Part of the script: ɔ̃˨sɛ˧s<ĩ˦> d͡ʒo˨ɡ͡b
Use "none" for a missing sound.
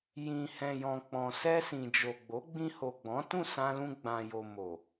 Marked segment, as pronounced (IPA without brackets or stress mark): ĩ˨